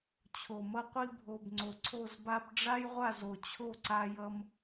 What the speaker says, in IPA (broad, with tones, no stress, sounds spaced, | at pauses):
t͡ɕʰ o˨ m ʌ˦ qʷ i˦ bʱ o˨ b ŋ͡ǀ o˨ ǀʰ o˦˨ z b a˦ b ɖ͡ʐ a˦ j ʁʷ a˦˨ z o˨ t͡ɕʰ o˦˨ ǀ a˦ j ʌ˦ m